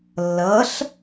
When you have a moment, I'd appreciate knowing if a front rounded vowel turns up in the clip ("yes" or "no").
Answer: no